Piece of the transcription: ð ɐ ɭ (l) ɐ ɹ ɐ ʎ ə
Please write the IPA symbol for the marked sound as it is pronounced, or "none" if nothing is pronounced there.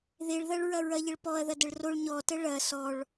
ɹ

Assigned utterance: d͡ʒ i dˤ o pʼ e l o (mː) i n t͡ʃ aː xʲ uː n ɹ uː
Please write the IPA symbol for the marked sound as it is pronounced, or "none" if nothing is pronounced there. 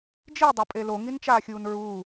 ŋ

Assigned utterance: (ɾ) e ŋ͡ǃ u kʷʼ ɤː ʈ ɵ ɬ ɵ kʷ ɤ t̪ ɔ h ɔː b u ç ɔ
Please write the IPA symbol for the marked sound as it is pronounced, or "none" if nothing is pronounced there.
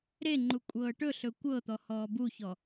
ɾ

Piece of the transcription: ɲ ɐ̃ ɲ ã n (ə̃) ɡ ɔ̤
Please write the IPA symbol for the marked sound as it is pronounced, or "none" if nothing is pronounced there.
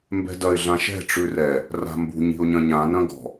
ɐ̃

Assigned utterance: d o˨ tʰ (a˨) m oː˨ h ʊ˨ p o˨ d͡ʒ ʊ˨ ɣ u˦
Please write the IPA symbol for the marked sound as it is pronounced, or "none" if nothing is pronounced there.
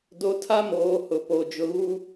a˦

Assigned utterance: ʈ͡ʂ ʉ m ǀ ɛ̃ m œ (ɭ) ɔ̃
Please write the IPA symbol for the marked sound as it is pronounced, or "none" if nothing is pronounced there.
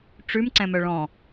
ɭ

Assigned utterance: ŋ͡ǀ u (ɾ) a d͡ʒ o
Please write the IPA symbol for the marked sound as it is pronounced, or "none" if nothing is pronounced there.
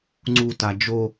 t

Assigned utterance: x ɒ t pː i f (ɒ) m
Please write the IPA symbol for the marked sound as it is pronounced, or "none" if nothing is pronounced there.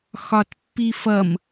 ʌ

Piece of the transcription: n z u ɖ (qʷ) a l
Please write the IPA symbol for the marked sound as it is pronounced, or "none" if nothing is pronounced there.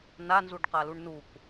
q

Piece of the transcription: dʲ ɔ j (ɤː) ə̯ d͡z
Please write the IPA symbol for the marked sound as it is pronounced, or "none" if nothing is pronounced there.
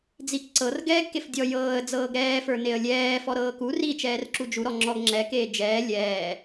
ɤː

